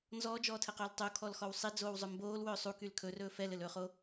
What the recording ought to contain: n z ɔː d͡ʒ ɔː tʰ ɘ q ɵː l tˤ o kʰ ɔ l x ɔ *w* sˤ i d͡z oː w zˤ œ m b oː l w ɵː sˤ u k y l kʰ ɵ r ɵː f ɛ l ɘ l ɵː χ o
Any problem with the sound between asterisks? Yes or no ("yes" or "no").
no